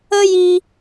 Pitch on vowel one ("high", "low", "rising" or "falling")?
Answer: high